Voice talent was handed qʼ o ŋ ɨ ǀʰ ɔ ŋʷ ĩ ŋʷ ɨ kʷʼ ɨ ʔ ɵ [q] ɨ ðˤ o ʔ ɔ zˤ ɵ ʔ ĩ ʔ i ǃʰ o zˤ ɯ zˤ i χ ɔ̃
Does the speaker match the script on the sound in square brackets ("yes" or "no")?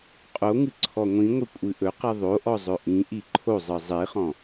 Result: yes